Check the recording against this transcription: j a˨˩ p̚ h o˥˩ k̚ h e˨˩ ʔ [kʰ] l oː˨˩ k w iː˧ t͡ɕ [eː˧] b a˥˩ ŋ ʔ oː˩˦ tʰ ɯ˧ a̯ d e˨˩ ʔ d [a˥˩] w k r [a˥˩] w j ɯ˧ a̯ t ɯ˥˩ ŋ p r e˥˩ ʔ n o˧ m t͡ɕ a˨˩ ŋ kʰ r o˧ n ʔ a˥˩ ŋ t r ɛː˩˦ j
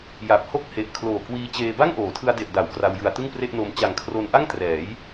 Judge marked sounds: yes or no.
yes, yes, no, no

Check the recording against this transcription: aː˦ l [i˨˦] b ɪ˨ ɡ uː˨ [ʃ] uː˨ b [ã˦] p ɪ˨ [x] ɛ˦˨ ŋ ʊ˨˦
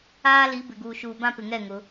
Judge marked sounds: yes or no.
yes, yes, yes, no

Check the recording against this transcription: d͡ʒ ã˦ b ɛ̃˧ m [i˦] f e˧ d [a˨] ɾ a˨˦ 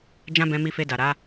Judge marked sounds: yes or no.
no, yes

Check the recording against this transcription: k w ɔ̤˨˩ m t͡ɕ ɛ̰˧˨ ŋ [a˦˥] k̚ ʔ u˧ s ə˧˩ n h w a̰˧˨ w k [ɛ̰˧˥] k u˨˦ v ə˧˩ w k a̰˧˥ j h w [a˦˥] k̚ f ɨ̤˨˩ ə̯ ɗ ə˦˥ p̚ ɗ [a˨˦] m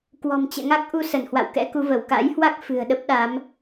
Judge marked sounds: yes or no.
yes, yes, yes, yes

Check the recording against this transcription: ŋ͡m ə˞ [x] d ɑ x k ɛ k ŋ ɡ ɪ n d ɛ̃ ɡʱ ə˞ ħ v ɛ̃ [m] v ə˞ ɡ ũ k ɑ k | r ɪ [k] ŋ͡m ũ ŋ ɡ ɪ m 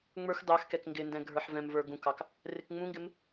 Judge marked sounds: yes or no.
yes, yes, yes

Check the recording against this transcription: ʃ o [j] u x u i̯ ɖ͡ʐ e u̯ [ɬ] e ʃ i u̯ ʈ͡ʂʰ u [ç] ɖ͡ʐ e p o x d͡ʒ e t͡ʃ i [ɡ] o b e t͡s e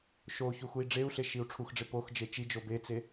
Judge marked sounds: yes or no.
no, yes, no, no

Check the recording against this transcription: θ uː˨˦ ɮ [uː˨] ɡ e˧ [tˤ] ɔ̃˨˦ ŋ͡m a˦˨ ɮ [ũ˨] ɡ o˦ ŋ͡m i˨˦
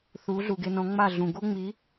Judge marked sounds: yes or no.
no, no, yes

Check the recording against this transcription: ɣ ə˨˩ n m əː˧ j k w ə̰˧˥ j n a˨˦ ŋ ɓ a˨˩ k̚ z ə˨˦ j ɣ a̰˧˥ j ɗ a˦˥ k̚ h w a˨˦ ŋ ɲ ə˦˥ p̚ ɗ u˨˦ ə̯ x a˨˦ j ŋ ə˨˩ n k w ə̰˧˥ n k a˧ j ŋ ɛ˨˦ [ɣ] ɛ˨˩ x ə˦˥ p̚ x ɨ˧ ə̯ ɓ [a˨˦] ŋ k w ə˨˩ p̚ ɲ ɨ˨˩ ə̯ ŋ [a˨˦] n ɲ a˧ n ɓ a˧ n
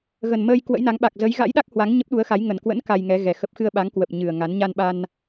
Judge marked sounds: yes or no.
yes, yes, yes

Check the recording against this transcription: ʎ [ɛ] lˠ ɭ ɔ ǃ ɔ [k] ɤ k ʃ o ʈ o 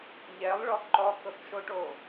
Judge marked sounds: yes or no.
yes, yes

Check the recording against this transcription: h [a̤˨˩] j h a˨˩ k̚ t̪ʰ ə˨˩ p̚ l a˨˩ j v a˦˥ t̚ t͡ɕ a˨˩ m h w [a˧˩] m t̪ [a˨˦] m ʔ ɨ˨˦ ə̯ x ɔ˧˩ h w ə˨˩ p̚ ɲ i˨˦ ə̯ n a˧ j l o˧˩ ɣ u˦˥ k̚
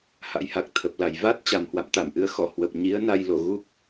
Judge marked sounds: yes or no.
no, no, no

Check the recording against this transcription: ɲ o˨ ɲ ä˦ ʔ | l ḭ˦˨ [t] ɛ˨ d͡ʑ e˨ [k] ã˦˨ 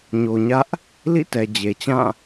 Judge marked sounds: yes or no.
yes, no

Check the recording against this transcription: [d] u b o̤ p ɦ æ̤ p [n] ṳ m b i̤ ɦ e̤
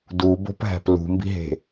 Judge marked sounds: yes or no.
yes, no

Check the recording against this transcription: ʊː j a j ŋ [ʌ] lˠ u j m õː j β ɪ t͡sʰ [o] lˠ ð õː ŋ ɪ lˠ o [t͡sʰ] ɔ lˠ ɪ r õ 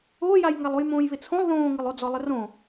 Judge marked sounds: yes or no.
no, no, no

